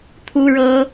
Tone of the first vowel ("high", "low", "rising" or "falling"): high